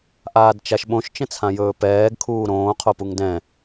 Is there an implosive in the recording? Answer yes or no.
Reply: yes